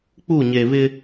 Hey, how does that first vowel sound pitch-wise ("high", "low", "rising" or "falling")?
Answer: falling